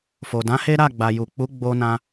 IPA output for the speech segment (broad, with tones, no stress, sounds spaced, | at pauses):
f o˨ d ã˨˦ h e˦ ɾ a˦˨ ɡ͡b a˨ j u˨ k͡p u˨˦ ɡ͡b o˧ n ã˧